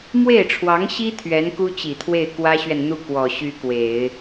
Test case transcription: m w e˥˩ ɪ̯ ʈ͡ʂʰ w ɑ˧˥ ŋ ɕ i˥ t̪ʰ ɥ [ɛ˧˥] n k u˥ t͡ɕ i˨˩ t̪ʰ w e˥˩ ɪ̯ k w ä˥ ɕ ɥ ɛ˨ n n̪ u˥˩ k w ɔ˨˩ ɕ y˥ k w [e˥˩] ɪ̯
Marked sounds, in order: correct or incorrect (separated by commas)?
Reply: correct, incorrect